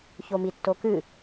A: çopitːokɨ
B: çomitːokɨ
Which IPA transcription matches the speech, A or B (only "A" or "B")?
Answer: B